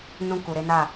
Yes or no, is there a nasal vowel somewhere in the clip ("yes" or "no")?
yes